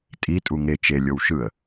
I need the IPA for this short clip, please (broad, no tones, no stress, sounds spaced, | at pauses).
tʼ i tʼ u ŋ e t͡ʃ e lʲ o w ʃ ɯ ə̯